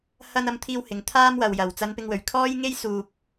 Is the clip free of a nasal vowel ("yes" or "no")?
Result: yes